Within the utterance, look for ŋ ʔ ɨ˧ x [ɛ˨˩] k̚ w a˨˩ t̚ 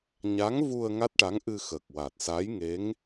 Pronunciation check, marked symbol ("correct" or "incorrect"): incorrect